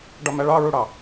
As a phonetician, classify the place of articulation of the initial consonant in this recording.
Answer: retroflex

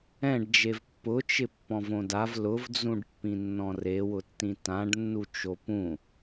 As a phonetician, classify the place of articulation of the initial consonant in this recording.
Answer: retroflex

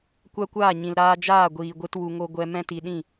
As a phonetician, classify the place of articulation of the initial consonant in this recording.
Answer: velar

